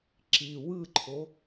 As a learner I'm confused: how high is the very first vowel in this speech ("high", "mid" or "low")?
high